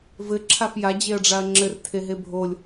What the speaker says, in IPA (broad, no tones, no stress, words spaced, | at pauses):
vɘ ǁʰafja d͡ʑeɐ̯ɖ͡ʐaɐ̯ŋ͡ǁɘr tʰeɦebʱolʲ